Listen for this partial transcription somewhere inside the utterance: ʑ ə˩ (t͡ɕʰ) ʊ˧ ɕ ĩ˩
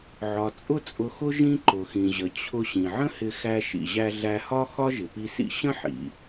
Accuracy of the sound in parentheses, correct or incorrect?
correct